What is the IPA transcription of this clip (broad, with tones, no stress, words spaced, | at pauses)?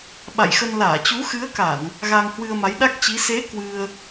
ɓa̰˧˨jxə˧n laː˧˩t͡ɕu˨˦xɨ˨˦ə̯ka˧˩˨n | ɣa˧ŋhwɨ˧ə̯ ma˨˦jɗa˦˥k̚t͡ɕi˨˦ se˨˦ kwɨ˧ə̯